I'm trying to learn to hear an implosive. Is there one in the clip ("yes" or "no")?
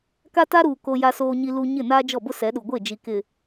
yes